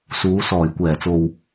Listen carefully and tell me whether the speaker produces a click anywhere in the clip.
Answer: no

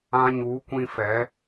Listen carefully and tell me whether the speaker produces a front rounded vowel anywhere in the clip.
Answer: no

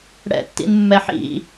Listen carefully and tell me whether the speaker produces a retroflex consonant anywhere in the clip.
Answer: yes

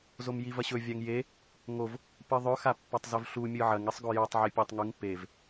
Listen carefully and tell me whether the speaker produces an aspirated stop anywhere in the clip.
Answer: no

